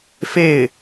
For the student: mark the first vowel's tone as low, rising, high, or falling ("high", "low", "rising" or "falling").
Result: falling